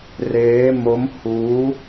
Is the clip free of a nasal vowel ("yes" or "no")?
yes